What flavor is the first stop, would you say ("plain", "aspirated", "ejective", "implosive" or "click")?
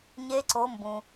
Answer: click